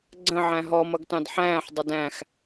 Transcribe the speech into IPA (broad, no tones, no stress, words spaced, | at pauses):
ɡ͡ǀə̃ʕæ̃ ɦɔmʌɡtɑ̃d ħæ̃ːħdˤʊd æ̃x